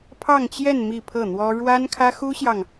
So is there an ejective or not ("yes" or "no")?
no